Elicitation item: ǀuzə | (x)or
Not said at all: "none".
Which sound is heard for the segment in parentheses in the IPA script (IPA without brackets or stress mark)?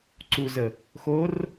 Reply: x